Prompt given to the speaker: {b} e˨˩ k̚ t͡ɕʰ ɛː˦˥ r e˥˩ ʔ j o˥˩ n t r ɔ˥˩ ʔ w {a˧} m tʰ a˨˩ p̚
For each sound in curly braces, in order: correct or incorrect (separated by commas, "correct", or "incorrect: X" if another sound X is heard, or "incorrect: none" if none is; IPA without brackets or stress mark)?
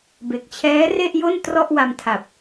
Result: correct, correct